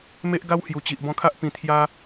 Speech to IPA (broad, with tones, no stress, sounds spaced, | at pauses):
m e˦ ʔ ɡ a˦ w h j u˨˩ t͡ɕ i˨ ʔ b ɔ̃˧ kʰ a˦ ʔ p ĩ˨˩ t̪ʰ j a˧